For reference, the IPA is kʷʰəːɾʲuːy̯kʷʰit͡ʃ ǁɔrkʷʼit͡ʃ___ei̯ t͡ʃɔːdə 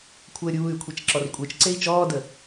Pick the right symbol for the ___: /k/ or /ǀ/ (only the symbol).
ǀ